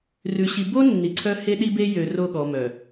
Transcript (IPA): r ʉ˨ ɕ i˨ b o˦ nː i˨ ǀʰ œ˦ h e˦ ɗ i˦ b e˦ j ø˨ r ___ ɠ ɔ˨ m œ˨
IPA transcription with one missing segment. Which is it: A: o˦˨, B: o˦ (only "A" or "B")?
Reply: A